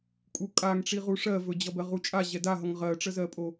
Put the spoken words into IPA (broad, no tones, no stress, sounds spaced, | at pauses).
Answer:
kʼ u kʼ a ŋ ʈ͡ʂ i ʁ u ʂ ɜ v ɵ d͡ʑ ʌ b ɜ ʁ u t͡ʃʼ a ʑ ɛ d a ɦ ʌ ŋ ʁ ɜ ʈ͡ʂ ə z ɜ pʼ o